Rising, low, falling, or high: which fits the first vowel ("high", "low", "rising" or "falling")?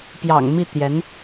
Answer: low